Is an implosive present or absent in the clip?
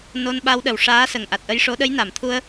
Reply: present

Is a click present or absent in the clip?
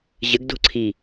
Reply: present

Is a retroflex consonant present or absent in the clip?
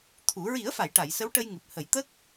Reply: present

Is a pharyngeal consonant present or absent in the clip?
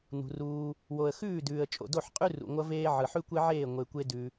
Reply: present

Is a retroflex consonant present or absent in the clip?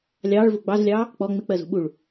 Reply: present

